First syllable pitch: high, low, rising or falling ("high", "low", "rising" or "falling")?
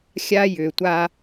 high